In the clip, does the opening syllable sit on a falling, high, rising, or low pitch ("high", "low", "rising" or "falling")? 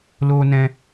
high